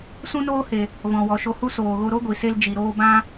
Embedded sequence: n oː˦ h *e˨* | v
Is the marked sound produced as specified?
yes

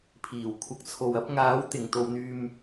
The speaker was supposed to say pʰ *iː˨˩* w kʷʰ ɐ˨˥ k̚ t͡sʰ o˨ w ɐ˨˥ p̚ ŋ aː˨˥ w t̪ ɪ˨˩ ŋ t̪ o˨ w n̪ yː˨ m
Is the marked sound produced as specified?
yes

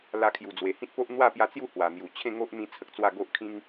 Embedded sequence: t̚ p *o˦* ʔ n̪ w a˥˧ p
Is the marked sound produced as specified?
yes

